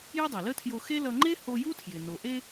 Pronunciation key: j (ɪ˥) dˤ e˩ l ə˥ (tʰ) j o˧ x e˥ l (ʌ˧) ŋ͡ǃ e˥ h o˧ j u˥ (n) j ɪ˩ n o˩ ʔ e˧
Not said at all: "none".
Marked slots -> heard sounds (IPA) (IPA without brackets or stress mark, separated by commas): ɪ˥, tʰ, ʌ˧, tʰ